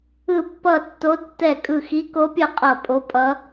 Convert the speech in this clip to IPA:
ɯ˧˩ pː ʌ˧˩ tː o˨˦ d tː ɛ˧˩ kʼ ɯ˧˩ x i˨˦ k o˨˦ pʲ ʌ˧˩ qʼ ʌ˧˩ pʼ o˨˦ pʼ ʌ˨˦

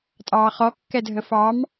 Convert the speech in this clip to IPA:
tʼ ɑː χ ɔ kː ɛ dʱ ə f ɑ m

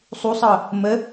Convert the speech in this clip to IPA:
sˤ u sˤ ɤ | m ə

